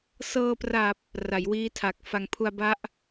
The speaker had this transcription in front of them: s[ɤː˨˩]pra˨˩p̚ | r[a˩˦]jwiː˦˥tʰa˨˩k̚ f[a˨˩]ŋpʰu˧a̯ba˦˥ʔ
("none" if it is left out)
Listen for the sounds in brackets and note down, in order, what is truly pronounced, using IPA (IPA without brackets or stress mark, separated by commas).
ɤː˧, a˩˦, a˨˩